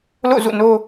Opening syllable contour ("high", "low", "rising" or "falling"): falling